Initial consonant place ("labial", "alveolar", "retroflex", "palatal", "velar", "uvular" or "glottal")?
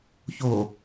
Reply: palatal